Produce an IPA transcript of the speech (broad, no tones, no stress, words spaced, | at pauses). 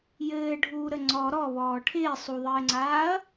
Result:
jɘːɖʱuːɾə ŋ͡ǀɔ ɾɔβɔː ʈʰɪː sˤuðˤɘːŋ͡ǀaːɐ̯